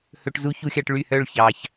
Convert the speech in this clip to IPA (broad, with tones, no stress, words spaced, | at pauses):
hɵ˧ʈ zu˦˥çu˧xʲɑ˧ʈ ɭy˥˩hœ˥˩ɭ çɑ˨˩ç